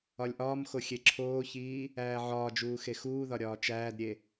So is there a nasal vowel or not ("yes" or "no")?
no